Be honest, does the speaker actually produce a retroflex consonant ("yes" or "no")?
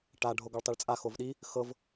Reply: yes